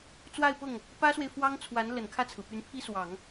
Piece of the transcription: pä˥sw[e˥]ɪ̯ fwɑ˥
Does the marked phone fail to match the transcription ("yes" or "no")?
yes